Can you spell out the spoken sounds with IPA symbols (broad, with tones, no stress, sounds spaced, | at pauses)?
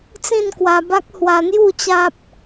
t͡s ĩ˥˧ n k w a˧ b a˦ k̚ h w a˧ n̪ j u˥˧ t͡ɕ a˦ p̚